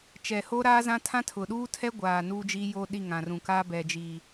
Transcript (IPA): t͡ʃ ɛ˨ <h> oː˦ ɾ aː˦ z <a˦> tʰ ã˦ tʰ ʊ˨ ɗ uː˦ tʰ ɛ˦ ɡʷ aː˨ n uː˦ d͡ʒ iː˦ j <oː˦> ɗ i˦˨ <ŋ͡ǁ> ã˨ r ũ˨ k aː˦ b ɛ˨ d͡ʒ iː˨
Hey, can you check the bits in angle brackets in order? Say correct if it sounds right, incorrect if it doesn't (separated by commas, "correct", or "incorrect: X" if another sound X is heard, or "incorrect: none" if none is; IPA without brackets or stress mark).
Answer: correct, incorrect: ã˦, correct, incorrect: ŋ